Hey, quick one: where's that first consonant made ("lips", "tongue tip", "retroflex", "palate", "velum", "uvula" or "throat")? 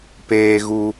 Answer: lips